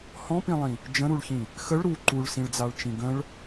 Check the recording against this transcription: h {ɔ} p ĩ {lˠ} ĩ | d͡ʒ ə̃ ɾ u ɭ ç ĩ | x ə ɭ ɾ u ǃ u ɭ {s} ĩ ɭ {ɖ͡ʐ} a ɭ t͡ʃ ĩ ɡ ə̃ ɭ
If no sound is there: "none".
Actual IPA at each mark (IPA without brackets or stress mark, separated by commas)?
ɔ̃, lˠ, s, d͡z